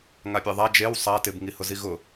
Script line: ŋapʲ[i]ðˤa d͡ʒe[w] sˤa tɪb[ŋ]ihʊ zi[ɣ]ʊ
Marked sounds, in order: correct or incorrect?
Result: incorrect, correct, correct, correct

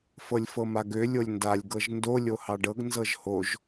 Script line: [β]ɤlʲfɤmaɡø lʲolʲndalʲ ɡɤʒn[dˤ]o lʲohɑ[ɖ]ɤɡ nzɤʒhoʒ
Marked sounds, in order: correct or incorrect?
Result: incorrect, incorrect, correct

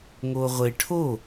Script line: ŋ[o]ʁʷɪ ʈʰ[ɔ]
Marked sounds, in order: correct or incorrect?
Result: correct, incorrect

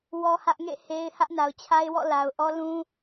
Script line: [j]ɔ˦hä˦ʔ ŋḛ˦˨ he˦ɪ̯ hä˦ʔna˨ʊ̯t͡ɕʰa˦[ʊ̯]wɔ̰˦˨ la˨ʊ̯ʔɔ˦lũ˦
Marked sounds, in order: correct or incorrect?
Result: incorrect, incorrect

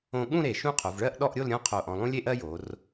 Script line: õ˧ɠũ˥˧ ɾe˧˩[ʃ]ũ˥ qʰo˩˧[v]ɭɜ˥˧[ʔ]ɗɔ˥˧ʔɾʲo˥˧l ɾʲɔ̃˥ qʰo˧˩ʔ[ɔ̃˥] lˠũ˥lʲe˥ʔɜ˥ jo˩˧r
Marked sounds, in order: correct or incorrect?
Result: correct, correct, correct, incorrect

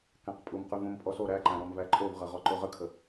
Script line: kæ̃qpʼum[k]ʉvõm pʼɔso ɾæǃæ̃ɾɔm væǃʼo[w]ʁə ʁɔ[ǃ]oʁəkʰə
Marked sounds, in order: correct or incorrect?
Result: incorrect, incorrect, correct

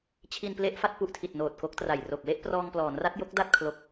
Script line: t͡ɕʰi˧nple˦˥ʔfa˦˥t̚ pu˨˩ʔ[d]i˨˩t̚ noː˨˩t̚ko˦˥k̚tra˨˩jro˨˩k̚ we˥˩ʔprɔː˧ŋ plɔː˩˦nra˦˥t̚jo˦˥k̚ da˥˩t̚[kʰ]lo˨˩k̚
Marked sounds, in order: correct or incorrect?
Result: incorrect, correct

